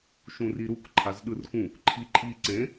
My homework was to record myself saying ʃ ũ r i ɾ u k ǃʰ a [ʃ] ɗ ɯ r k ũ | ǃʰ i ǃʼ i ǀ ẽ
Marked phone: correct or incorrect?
incorrect